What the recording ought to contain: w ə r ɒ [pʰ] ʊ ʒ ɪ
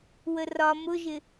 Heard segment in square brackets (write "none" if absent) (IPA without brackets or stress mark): m